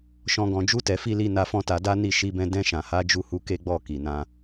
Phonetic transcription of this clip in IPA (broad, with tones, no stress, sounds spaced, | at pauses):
ʃ ɔ̃˧ ɡ ɔ̃˨ d͡ʒ u˧ t ɛ˨ f i˧ l i˧ n a˧ f ɔ̃˦ t a˧ d a˦ n i˦˨ ʃ i˧ b ɛ̃˧ d ɛ̃˧ ʃ ã˨ h a˨˦ d͡ʒ u˦˨ h u˨˦ k e˦ ɡ͡b ɔ˦˨ k i˨ n ã˧